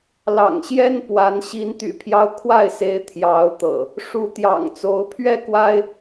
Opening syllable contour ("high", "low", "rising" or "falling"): low